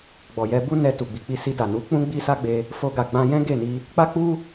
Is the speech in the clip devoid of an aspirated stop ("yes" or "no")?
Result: yes